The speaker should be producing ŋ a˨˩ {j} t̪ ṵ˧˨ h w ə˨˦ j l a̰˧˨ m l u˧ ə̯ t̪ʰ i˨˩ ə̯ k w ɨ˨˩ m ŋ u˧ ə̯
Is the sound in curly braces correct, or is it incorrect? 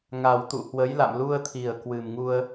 incorrect